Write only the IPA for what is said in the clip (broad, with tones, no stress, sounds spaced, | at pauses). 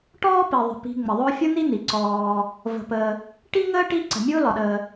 ʈ ɔː˥ p i˩ ðˤ ə̤˩ p i̤˨ ŋ͡m ə˩ ðˤ ʊː˦ fʲ ʊ˥ n̪ i˥ n̪ i˩ ǀ ɔː˨ | v ə̤˨ p əː˨ | ʈ i˥ ŋ əː˥ ʈ i˦ ǀ ə̤˩ mʲ ʊː˥ l ɒ˩ ɗ əː˨